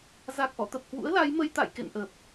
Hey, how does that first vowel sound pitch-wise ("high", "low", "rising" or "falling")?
low